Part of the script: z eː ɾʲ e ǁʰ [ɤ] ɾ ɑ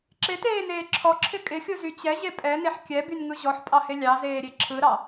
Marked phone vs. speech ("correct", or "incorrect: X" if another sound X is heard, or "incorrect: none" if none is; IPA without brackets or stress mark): incorrect: ɯ